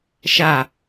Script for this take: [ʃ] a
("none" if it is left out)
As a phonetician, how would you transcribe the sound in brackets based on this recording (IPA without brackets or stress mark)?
ʃ